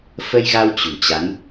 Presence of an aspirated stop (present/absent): absent